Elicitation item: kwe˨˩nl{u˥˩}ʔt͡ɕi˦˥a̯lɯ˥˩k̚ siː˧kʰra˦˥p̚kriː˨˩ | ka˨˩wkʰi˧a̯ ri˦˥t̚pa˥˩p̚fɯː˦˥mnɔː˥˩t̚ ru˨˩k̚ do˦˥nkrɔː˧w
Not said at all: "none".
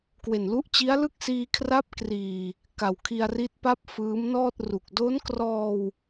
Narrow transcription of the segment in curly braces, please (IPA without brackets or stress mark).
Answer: u˦˥